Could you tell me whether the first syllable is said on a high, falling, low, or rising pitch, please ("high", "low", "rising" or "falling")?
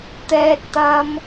high